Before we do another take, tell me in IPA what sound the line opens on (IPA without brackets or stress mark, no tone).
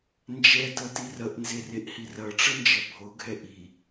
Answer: n